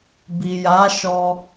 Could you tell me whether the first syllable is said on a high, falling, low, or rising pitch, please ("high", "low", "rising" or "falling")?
low